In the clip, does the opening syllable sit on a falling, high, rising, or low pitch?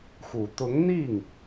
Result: low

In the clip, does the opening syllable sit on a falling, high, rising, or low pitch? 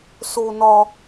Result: high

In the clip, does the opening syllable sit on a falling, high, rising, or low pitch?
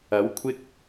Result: rising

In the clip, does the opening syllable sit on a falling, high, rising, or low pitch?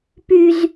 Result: high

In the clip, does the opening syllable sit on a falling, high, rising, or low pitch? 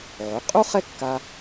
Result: rising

